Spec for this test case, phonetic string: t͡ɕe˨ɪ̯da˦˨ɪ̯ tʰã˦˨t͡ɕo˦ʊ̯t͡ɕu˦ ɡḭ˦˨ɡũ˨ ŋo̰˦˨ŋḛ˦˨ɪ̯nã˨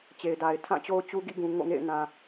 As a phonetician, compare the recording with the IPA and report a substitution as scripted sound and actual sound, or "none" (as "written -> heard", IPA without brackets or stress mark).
a˦˨ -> a˨